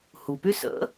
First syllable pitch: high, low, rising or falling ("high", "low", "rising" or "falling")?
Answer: low